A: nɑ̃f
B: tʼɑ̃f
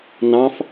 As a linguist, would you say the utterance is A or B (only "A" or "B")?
A